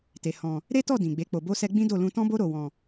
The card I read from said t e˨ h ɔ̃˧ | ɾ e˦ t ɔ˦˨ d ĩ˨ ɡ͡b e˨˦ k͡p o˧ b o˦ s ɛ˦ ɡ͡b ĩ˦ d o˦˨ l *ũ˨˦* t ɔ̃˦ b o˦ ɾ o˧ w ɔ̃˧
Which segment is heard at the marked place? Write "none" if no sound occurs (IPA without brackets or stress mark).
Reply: ũ˧